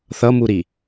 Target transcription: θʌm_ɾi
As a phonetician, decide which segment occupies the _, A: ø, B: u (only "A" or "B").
B